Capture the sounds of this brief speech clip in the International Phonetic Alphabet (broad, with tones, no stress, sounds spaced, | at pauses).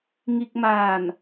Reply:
ŋ i˧ k̚ m aː˧˩ n